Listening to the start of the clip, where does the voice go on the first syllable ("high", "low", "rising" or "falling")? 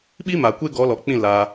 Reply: high